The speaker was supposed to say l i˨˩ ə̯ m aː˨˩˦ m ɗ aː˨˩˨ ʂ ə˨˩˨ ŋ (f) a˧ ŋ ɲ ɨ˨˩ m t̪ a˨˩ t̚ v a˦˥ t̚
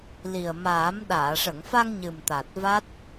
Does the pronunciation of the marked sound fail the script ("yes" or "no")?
no